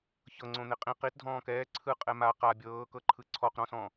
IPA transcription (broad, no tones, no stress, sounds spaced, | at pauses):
ç ɤ ŋ͡ǀ õ n̪ e qʼ ĩ q i t dʱ ɔ̃ː k ɛː ǀʰ ɯ qʼ ɛ m a q a bʲ ɤː k ɤ ǃʰ ɯ ǀʰ ɔ q ɾ ɔ̃ s ɔ̃